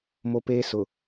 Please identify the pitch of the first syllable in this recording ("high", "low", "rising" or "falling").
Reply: high